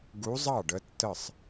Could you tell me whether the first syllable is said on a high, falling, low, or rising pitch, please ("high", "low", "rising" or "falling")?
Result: rising